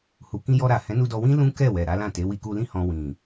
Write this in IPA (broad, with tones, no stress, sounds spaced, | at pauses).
h u˨ k ĩ˧ j ɔ˧ ɾ a˨ h ɛ̃˨˦ n u˧ d ɔ˧ w ĩ˦ l ũ˦ k ɛ˦˨ w ɛ˨ ɾ a˨˦ l ã˦˨ t e˨˦ w i˧ k u˧ l ĩ˦ h ɔ̃˧ w ĩ˨